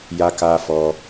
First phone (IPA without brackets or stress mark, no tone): j